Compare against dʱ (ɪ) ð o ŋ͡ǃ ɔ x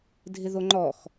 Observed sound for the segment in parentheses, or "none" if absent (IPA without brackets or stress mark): ɪ